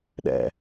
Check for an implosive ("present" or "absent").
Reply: present